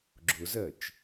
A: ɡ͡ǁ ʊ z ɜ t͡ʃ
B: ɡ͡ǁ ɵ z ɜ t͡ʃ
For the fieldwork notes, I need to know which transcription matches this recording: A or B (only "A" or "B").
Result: A